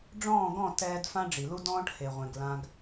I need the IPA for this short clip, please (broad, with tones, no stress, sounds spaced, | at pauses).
ɖ͡ʐ ɔ̃ː˥˩ ɡ ɔ̃˥˩ t ɛː˧ d f ã˥ ɖ͡ʐ i˩ l u˥ d ɔ̃ː˥ ʈ h e˩ ʁʷ ẽ˩ ɡ l ã˧ ɡ